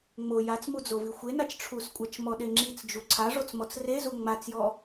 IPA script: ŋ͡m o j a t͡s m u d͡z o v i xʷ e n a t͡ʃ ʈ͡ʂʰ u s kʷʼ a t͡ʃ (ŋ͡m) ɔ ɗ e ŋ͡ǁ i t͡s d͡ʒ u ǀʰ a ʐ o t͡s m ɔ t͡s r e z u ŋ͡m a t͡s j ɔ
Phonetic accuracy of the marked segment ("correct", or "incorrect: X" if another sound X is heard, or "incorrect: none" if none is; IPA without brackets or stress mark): incorrect: m